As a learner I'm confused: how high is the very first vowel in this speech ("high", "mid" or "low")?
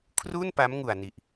high